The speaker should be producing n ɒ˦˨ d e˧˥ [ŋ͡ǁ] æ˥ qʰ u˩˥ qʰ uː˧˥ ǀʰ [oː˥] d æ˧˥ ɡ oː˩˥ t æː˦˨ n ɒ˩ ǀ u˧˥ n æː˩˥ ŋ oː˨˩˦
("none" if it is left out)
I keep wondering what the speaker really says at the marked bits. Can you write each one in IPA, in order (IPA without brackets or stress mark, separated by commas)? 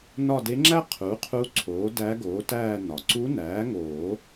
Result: ŋ͡ǁ, oː˩˥